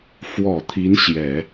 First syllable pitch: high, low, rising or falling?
low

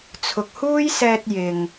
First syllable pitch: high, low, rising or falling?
low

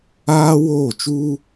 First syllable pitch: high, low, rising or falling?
high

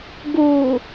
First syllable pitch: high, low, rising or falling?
low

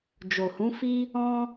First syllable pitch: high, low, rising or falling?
low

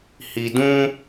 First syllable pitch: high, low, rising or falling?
low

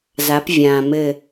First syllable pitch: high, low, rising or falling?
rising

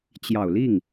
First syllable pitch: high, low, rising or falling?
low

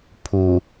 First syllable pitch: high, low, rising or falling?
low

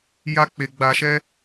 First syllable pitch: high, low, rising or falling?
high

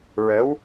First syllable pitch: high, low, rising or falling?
rising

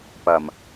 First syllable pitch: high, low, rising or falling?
low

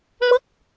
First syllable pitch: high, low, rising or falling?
falling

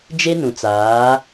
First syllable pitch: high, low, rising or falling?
high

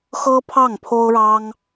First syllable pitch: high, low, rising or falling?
high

